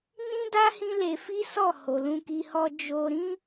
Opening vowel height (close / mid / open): close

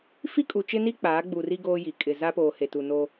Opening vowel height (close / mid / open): close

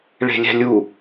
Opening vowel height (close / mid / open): mid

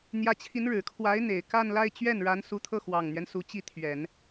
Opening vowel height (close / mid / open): open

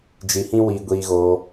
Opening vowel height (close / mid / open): close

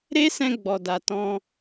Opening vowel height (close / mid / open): mid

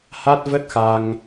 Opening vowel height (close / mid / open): open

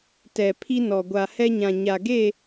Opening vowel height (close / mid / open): mid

